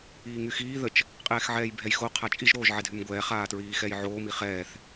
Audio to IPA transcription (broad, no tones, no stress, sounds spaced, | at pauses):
iː ŋ y x iː ð ə t͡ʃ | qʼ ɛː x ʕ ɛː j bʱ ɛ j x o qʰ a t͡ʃʼ i ʒ ɾ oː ʒ ʕ ɛ dʱ y m ɡʷ ɛː χ aː t ɹ iː x ɛ j ʕ oː m i χ ɛː θ